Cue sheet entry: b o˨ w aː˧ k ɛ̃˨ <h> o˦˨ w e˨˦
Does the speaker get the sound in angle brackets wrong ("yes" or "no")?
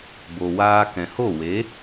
no